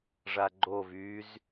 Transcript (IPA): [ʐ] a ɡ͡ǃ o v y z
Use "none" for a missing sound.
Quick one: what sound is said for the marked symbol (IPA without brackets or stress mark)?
ʐ